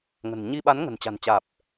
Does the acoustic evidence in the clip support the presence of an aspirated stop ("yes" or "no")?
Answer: no